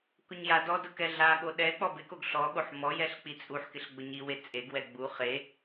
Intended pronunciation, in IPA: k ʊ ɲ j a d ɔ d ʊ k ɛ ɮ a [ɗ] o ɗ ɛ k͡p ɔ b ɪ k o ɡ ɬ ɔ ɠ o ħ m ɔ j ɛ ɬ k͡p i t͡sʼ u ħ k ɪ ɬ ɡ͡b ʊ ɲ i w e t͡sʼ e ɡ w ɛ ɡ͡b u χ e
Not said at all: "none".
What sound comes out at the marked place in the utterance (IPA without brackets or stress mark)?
ɠ